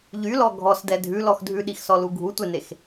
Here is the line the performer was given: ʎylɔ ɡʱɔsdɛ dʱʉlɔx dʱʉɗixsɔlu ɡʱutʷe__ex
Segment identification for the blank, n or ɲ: n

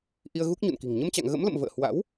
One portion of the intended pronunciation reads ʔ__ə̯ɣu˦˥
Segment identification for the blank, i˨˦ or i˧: i˧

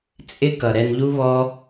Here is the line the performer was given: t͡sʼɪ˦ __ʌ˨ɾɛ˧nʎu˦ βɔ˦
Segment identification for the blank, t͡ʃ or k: k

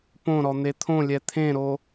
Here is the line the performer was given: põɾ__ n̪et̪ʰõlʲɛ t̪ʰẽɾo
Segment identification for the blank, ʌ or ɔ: ɔ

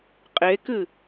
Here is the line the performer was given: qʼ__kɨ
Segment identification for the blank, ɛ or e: e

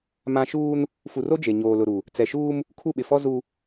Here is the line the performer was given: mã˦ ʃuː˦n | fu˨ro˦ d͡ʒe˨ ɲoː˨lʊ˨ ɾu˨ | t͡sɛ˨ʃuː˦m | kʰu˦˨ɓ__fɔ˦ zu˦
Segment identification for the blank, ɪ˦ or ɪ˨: ɪ˨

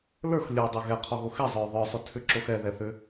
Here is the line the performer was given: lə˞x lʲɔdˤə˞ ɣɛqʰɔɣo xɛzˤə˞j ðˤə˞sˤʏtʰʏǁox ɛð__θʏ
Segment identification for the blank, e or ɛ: ɛ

